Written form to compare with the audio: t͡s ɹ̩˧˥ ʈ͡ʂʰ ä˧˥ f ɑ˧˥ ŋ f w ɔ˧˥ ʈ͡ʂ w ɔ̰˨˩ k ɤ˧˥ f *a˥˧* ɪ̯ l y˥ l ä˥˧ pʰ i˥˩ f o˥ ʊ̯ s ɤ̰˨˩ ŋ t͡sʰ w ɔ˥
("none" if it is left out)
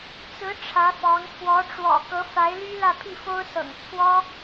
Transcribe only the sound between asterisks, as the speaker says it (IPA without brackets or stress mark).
a˧˥